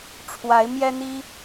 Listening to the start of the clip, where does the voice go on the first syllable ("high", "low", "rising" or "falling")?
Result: rising